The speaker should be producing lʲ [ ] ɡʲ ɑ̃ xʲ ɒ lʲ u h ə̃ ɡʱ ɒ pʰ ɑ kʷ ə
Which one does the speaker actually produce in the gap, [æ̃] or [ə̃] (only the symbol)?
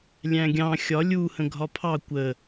æ̃